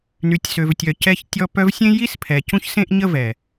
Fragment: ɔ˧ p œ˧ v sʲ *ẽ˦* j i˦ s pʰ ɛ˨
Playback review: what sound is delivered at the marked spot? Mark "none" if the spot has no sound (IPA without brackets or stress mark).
ẽ˦